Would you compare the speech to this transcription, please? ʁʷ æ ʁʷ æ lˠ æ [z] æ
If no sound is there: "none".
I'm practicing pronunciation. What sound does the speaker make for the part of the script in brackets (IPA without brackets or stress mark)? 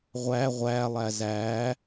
z